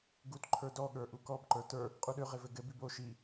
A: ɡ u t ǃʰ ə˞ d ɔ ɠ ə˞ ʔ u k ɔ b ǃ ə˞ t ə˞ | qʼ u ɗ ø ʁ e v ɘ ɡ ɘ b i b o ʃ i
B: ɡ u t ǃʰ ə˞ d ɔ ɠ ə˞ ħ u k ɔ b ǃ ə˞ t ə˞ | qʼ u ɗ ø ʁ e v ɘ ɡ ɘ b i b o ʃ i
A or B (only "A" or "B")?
A